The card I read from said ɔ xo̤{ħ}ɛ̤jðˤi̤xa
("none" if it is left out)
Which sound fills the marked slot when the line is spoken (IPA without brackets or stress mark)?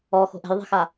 ʔ